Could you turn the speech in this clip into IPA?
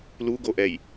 l u ɡ o ʔ ɛ j

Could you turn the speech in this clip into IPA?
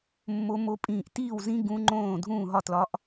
mː o˧˥ m o˧˥ pʼ ĩː˥˩ ʔ t iː˥˩ w z ĩ˧˥ ɡ ũ˧˥ ŋ͡ǃ õː˥˩ dʱ ũː˥˩ ɦ ɒ˥˩ t l ɒ˧˥ ʔ

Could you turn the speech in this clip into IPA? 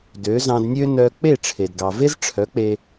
d ø˩˥ z ɑ̃˧ d nʲ ø˥ n œ˧ k͡p e˥˩ ʈ͡ʂʰ e˩ d ɡ ɑ˩ v e˥ z ʈ͡ʂʰ œ˩˥ k͡p e˧

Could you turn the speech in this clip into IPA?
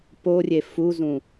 p o rʲ e f u z ũ

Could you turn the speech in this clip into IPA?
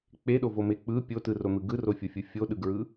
k͡p e ɗ o v o m e k͡p ɯ pʲ o t ɯ r o n̪ ɯ ɡ ɯ r o fʲ o fʲ ɯ fʲ o ɗ ɯ ɡ ɹ ɯ

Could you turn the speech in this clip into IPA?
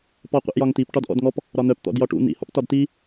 p ɔ qʷ ḭ ʔ j ɒ ŋ t i p ʈ ɒ d ʔ ɔ̰ d ŋ ɔ p | ɾ ɒ n̪ œ p t̪ ɔ̰ d j ɒ ʈ ṵ n̪ ḭ h ɔ̰ p t ɒ d t i

